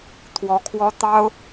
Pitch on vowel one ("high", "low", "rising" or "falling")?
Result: rising